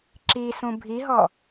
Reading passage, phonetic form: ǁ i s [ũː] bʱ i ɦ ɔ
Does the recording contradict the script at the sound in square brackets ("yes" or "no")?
yes